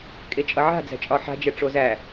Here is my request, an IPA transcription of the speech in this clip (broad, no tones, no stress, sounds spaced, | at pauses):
kʼ e t͡ʃʼ ʌ ʕ a̤ d͡z æ̤ t͡ʃʼ ɒ ħ a̤ d͡ʒ ɛ ʈ͡ʂ o z æ